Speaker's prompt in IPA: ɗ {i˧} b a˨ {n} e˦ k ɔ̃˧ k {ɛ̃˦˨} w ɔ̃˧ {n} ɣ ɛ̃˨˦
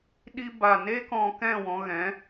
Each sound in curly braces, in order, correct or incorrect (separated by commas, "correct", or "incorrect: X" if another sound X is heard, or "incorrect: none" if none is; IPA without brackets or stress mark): correct, correct, correct, incorrect: none